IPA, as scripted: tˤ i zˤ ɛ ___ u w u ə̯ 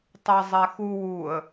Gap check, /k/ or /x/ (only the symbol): x